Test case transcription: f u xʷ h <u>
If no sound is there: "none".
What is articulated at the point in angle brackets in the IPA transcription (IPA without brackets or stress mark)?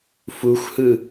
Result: ɯ